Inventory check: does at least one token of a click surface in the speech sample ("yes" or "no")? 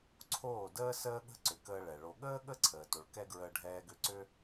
yes